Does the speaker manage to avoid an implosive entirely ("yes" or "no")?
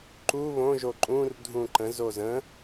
yes